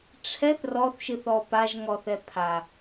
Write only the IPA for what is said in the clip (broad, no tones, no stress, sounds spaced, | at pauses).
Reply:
ʈ͡ʂʰ ɛ θ r ɔ θ ʃ ɨ θ ɔ p a ʒ ŋ ɔ θ ɛ pʰ a